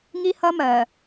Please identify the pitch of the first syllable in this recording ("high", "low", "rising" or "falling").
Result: high